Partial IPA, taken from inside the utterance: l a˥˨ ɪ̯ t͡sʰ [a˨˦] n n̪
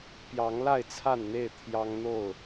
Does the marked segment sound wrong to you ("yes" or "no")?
yes